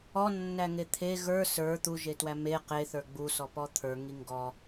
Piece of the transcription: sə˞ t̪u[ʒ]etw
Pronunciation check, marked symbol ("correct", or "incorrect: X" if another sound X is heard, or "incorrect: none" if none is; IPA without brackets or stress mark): correct